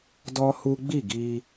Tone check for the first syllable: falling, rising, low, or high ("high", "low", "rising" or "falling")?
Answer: high